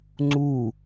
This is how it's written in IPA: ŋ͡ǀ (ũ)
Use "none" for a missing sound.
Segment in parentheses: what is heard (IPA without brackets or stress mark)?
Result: u